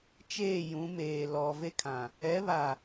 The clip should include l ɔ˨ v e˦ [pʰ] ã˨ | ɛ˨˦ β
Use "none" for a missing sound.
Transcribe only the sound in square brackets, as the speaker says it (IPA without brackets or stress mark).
kʰ